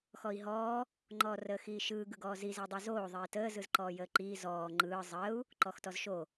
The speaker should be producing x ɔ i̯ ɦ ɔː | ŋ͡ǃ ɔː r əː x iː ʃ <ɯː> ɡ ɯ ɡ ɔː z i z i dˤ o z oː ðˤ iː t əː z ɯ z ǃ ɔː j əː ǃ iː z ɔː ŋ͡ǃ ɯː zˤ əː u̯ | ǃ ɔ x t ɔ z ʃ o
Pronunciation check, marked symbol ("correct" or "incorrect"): correct